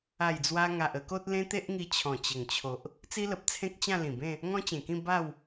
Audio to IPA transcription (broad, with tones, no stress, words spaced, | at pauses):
a˨˩jd͡zwa˧ŋa˨ʔ ə˧ko˦t̚ lẽ˦t̪e˦ʔŋi˧ t͡ɕʰɔ̃˨˩t͡ɕə˨˩ŋt͡ɕʰo˨ʔ | t͡si˦lə˨p̚ t͡sʰẽ˦k̚t͡ɕã˥˧lĩ˨˩bẽ˥˧ | ŋɔ̃˦t͡ɕẽ˨˩kĩ˥˧ ba˥˧w